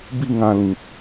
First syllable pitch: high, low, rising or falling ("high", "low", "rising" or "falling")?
falling